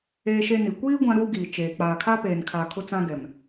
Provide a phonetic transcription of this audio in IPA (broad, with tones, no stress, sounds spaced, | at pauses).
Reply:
eː˦ ʃ e˦ n i˨ kʷ iː˦ ɡʷ ã˦ ɾ uː˦ ɡ iː˨ t͡ʃ eː˨ k͡p aː˨ kʰ aː˦ p eː˨ n kʰ aː˨ kʰ ʊ˦ t͡s ã˦ ɡ ɛ˨ m